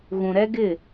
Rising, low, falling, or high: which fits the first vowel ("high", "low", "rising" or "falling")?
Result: low